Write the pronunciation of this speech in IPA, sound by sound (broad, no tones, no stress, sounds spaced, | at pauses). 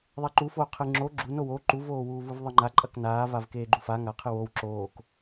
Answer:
ðˤ e ǃ u f oː qʰ ɨ ŋ͡ǁ o ɡ͡ǁ u n o w o ǃ u v oː w uː v u v ðˤ ɨ ŋ͡ǃ a ǃʼ ɐ k n aː v a v k eː ɡ͡ǃ u f a ŋ a qʰ ɨ w o w ǁ oː k